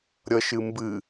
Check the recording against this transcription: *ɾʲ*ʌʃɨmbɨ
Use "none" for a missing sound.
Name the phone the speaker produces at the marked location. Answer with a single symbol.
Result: ɾʲ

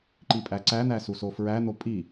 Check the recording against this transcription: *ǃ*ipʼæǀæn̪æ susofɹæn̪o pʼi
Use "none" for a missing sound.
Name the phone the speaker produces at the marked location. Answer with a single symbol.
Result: ǃ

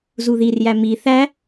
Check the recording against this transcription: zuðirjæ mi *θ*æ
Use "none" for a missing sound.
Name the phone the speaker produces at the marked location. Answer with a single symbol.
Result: θ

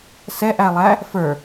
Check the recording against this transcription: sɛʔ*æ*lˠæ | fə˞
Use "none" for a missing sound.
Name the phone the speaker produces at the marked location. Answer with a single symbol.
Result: æ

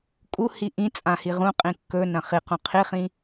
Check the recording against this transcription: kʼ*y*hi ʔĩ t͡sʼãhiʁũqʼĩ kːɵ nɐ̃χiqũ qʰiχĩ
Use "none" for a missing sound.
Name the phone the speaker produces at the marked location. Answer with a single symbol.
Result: u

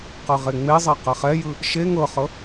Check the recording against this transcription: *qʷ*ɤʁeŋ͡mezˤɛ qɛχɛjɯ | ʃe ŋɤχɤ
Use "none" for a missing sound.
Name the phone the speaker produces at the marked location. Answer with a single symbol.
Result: q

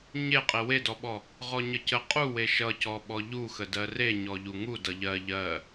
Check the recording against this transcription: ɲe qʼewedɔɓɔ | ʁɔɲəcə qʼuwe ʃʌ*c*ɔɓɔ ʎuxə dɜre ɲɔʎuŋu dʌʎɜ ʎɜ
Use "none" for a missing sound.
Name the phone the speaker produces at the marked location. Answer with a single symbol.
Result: c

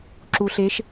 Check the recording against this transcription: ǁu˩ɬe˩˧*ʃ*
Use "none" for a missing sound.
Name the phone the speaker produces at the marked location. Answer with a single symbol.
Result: ʃ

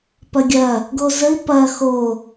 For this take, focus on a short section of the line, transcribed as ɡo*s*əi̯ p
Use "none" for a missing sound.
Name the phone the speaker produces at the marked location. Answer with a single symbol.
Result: z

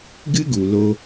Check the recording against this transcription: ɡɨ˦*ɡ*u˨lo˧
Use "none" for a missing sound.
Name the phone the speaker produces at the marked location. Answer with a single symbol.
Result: ɡ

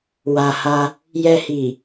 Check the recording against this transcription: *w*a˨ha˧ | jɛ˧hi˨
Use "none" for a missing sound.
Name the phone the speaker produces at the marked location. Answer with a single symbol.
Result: w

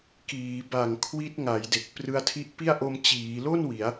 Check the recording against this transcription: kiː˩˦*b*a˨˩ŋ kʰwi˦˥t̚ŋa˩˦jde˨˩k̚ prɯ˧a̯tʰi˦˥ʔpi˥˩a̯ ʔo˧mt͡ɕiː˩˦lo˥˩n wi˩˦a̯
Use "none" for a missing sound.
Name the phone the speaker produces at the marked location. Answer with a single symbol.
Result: b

